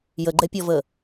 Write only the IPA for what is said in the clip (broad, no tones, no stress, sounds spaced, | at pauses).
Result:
j ə ɡ͡ǃ ɛ pʲ ɔ v ə